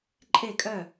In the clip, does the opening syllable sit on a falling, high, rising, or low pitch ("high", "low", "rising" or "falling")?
falling